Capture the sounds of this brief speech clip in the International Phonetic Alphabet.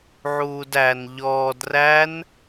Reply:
ʕ uː d æ n ʎ ɔː d r æ n

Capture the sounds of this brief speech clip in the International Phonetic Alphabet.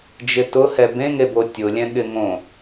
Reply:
d͡ʒ ɪ t ʊ h ɛ b ẽ ŋ e b o tʲ ʊ lʲ ɛ̃ ɠ ɪ ŋ õ

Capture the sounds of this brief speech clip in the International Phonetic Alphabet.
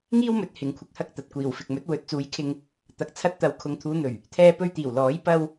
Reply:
ŋ iː˥ w m ɵ˨˥ t̚ h ɪ˨˧ ŋ kʷʰ ɪ˧ k̚ h ɐ˥ k̚ t̪ ɐ˨ t̚ kʷ iː˨˩ w f ɪ˨ k̚ m ɵ˨˥ t̚ w ɵ˨˥ t̚ t͡s uː˨˥ j kʰ ɪ˧ ŋ | t̪ ɐ˨ k̚ t͡sʰ ɐ˧ t̚ t̪ ɐ˨˧ w kʰ ʊ˨ ŋ t̪ʰ uː˨˧ n̪ ɵ˨˩ ɥ | t̪ʰ ɛː˧ p ɵ˧ ɥ t̪ iː˨˩ w l ɔː˨˥ j p ɐ˥ w

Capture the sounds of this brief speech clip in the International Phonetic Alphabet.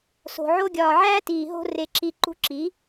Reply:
s o̤˨ ʕ o˧ ɡʲ ɒː˨ ʕ æː˦ t iː˨ ɦ o̤˧ r e˨ ǁ i˨ ǃ ṳ˧ ǁ i˨˦

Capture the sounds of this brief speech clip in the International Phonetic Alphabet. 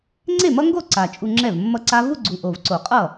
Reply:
ŋ͡ǀ e˥˩ m ʌ˦˥ ŋ ɡ o˥˩ ǀ a˨˩ t͡ʃʼ u˧ ŋ͡ǁ ɛ˥˩ v mː ʌ˦˥ ǀ a˦˥ v u˥˧ ɡ͡ǀ u˨˩ ʔ o˨˩ v ǀ o˨˩˦ qʼ ʌ˥˩

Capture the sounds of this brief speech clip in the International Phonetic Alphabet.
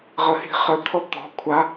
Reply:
ʁ ə h i̤ χ ə t̪ʰ ɔ t̪ ɔ̤ kʷʰ a

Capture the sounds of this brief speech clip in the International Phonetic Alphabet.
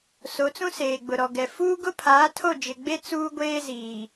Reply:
s o˨˦ t͡s ũ˦ s eː˨ ɡ͡b ʊ˨ ɾ ɔ˨ ɡ ɛ˨ f uː˦ ɡ ʊ˦ pʰ aː˨˦ tʰ o˦˨ d͡ʒ ɪ˨ ɡ͡b e˦ t͡s uː˦ ɡʷ eː˦ z iː˨

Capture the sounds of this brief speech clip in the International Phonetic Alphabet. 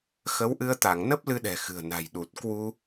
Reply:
x ə˨˦ w ʔ ɨ˧ ə̯ t̪ a˧˩ ŋ n ə˦˥ p̚ l ɨ˧ ɗ ɛ̤˨˩ x ɨ̤˨˩ ə̯ n a̤˨˩ j ɗ u˨˩ t̚ k w u˧

